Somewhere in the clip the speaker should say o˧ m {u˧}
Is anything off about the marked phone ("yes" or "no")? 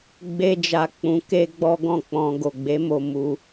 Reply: no